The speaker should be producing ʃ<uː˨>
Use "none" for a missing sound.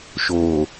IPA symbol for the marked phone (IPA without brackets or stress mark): oː˨